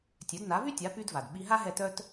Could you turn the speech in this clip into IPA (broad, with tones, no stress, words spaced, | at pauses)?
tʲœ˩˥dna˩˥vy˥tʲa˩˥ py˧dva˩d ɓi˧ɦa˥ ɦɛ˥˩tœ˥t